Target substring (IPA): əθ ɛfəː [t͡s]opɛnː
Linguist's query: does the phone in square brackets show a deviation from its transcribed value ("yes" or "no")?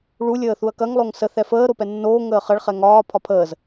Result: yes